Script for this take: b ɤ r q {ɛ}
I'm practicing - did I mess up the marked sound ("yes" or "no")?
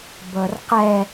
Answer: no